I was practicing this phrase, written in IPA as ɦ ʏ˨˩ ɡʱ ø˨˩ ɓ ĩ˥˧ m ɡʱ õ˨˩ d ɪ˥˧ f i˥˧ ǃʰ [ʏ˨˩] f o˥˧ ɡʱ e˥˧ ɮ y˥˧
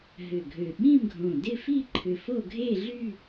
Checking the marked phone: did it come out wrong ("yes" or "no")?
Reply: no